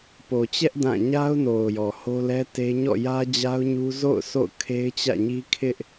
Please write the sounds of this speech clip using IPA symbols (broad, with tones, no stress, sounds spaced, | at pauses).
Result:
p o˨ t͡ɕ ɛ˦ ʔ d ã˦˨ ɲ a˦ ʊ̯ n o˨ ʊ̯ j ɔ˨ h o˦ l ɛ˦ t e˦ ɲ ɔ̰˦˨ j ä˦ d͡ʑ a˦ ʊ̯ ɲ u˦ z o̰˦˨ ʊ̯ sʰ o̰˦˨ ʊ̯ kʰ e˦ ɪ̯ t͡ɕ ä̰˦˨ ɲ i˦ kʰ ɪ˦ ʔ